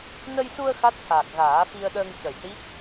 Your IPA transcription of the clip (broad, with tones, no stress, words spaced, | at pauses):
nə˧jsu˧ə̯ xa˦˥t̚t̪ʰaː˨˩k̚ɣaː˨˩˦fi˧ə̯ ɗəː˧ŋcə˨˩j ʈi˦˥k̚